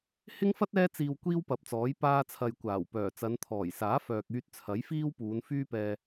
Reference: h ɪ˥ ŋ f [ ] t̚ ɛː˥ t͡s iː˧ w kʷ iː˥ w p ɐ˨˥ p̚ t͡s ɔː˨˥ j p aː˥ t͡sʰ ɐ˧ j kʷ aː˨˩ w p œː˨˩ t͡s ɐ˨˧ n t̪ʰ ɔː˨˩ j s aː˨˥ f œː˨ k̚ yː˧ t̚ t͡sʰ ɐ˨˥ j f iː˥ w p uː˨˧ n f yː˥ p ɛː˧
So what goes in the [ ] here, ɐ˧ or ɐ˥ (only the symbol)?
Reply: ɐ˥